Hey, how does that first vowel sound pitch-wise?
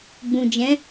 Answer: low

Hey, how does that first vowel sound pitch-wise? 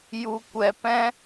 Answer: low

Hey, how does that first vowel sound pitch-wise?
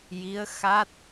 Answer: rising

